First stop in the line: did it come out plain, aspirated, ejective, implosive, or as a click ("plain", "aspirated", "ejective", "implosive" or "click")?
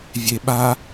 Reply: implosive